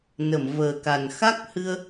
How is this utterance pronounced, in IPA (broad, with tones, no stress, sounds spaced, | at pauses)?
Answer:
n ə˨˩˨ m v əː˨˩ k a˨˩ n x a˦˥ k̚ h ɨ˧ ə̯